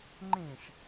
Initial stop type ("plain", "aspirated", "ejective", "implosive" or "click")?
click